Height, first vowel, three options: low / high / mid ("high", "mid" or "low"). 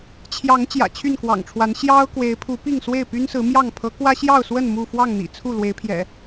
low